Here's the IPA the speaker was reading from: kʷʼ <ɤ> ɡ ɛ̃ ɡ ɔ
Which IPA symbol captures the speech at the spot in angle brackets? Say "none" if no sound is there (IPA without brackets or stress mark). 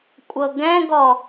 ɤ